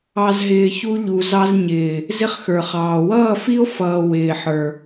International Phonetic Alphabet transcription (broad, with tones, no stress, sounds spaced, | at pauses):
ɑ˨ z ɦ ɪː˨ ç u˦ ʎ u˨ z ɑ˦ z ɲ ɪː˨ | z ɪ˦ χ x ə˞˨ χ ɑː˨ w ʌː˦˨ f i˦ o̯ f ʌː˨ w ɪː˨ ħ ə˞˨